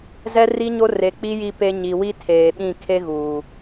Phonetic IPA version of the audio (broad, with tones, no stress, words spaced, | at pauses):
zɛ˦ri˦ɲo˦ re˨k͡pi˦ ji˦pe˦ ɲi˨wi˦ tʰeː˨ɓĩ˦˨ kʰe˦ɣuː˨